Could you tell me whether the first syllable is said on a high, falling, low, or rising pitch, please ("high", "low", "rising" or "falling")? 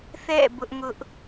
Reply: falling